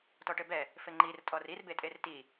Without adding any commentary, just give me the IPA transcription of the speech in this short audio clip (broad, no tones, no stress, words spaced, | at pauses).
tɔʈɘbɛ | fɘŋ͡ǃir tʼɔrirbetʼer ti